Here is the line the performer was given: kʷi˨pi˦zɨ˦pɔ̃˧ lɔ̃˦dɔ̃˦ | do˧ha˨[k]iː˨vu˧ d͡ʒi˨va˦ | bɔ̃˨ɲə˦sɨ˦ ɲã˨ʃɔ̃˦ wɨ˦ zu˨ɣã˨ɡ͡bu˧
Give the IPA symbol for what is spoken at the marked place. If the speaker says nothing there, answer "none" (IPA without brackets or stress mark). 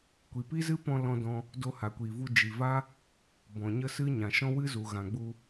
kʷ